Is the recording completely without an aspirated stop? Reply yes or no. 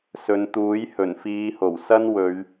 yes